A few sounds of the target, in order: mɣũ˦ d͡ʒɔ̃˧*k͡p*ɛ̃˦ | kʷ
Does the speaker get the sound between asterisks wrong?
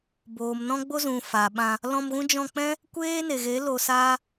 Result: no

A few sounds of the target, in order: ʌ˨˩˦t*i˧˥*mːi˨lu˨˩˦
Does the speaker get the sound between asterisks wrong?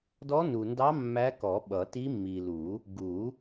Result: no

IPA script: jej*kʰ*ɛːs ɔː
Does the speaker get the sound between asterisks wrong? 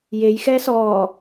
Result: yes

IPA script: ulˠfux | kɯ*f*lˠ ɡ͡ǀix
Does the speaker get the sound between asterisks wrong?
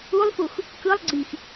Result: yes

